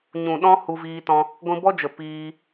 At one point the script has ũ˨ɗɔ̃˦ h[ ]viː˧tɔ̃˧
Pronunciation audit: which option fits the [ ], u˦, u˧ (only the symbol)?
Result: u˧